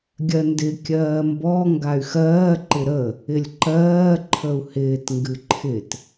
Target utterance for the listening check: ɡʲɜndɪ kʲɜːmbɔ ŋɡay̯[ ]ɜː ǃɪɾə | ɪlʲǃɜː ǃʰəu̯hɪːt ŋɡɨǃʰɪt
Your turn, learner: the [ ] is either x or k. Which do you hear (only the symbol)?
x